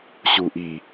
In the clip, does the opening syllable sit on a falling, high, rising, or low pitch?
low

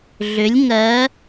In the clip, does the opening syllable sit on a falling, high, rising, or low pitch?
rising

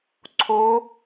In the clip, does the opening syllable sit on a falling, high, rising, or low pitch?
rising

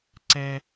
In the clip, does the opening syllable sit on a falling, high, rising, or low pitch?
high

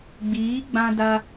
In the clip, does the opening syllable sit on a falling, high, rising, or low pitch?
rising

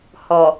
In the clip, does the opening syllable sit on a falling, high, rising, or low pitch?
low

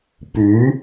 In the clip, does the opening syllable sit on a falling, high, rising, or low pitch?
rising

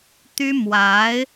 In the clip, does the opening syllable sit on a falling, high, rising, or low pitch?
high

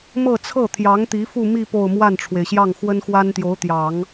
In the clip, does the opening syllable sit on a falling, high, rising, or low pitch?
falling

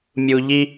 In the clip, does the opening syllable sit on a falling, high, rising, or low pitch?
low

